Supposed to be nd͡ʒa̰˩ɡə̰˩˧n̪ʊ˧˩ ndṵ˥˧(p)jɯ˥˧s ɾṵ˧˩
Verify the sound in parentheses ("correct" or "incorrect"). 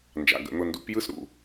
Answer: correct